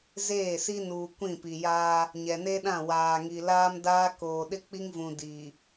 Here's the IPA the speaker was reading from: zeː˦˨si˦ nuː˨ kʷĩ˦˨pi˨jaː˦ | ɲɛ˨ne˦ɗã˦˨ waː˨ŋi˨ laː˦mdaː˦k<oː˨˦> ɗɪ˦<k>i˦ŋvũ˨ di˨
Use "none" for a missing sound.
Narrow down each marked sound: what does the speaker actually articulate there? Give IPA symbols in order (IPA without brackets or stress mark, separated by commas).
oː˨, k͡p